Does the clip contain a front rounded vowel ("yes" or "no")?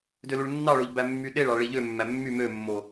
yes